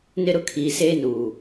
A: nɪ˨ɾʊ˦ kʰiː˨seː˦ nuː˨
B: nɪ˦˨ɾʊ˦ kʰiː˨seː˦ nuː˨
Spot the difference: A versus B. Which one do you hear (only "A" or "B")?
B